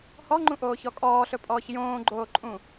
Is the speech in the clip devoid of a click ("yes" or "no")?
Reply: no